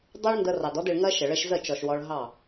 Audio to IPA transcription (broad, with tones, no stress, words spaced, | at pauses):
dˤɜ˦ɭndə˧rɑ˨d ɔ˦dɪ˧ɭŋɜ˦ ʃə˨ɭə˧ʃzə˦˨t͡ʃɔ˨ʃ wɔ˧ɭ ɦɑ˦˨